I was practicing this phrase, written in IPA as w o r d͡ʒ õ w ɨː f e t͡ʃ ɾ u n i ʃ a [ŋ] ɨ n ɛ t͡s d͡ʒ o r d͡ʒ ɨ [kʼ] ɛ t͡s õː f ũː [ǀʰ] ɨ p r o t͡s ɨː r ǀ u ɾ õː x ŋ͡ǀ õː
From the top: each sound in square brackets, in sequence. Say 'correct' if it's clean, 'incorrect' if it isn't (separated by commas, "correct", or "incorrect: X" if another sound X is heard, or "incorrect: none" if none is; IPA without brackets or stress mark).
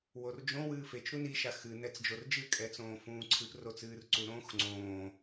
incorrect: x, correct, correct